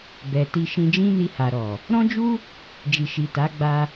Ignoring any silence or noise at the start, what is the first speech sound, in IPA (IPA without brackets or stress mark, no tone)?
b